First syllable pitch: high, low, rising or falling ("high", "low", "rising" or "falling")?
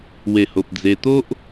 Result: low